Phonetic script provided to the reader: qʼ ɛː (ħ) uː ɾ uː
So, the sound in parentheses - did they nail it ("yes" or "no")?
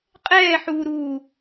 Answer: yes